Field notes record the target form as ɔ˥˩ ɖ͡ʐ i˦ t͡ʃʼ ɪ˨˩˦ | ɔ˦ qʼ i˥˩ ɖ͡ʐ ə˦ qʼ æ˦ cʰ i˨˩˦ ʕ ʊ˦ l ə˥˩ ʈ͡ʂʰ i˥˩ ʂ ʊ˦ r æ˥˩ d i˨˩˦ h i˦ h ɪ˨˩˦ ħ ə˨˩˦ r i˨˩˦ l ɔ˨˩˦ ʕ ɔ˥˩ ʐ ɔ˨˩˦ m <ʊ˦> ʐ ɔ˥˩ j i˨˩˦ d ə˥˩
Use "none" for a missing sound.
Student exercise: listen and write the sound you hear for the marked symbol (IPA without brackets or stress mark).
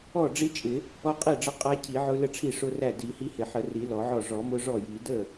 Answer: ʊ˦